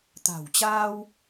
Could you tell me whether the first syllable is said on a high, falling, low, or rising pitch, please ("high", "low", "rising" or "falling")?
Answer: low